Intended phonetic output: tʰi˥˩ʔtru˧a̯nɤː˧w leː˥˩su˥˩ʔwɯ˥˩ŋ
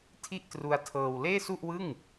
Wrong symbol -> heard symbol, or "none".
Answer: n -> tʰ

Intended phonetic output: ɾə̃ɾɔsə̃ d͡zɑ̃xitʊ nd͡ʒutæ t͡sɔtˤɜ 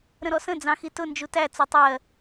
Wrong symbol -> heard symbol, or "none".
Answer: none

